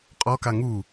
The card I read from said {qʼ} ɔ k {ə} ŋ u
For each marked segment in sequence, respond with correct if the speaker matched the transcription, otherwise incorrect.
correct, incorrect: a

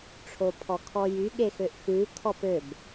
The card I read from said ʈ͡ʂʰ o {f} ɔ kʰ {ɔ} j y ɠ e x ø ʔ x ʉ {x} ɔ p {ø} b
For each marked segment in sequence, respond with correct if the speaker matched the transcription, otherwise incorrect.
incorrect: pʰ, correct, incorrect: kʰ, correct

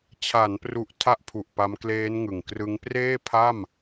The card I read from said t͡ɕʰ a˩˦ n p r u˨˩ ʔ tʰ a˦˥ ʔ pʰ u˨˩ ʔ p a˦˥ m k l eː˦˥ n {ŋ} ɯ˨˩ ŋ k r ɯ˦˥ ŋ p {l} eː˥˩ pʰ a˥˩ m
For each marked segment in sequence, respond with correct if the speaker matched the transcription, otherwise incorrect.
correct, incorrect: r

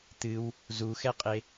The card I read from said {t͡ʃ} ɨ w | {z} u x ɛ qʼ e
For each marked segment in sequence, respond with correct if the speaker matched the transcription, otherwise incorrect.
incorrect: t̪, correct

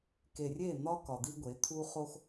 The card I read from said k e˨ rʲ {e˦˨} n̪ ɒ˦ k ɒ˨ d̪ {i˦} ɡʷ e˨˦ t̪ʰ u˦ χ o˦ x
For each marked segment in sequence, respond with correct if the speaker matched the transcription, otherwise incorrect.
correct, correct

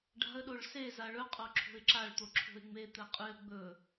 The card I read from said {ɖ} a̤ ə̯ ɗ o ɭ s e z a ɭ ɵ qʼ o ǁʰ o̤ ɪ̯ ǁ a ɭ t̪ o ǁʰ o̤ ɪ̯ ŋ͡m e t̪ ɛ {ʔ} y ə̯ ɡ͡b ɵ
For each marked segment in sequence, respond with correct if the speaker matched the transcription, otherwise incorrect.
correct, incorrect: qʼ

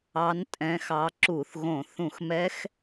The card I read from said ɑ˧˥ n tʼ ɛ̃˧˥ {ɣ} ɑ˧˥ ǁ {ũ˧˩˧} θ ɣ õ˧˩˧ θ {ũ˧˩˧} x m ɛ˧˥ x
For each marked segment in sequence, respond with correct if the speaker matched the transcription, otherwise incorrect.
incorrect: x, incorrect: u˧˩˧, correct

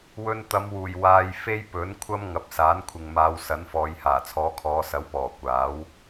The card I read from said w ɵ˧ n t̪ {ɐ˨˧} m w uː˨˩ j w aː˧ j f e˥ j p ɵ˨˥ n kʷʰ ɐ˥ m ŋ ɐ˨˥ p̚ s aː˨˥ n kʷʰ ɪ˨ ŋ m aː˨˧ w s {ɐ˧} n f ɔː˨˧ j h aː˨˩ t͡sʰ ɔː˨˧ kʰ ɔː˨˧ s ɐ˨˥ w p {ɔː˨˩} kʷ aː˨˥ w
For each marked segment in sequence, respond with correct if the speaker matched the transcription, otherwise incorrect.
correct, incorrect: ɐ˨˥, correct

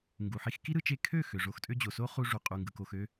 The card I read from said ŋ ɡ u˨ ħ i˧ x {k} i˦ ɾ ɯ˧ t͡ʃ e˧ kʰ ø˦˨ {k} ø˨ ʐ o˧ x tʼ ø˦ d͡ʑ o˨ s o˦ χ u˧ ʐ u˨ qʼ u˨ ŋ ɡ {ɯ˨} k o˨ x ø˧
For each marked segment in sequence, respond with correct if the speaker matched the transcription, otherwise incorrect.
correct, incorrect: x, correct

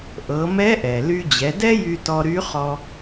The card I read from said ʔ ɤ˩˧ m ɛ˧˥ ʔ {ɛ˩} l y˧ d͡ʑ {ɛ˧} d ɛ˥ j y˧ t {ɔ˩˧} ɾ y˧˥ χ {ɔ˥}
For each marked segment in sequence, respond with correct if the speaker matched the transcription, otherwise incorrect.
correct, incorrect: ɛ˩˧, incorrect: ɔ˧, incorrect: ɔ˧

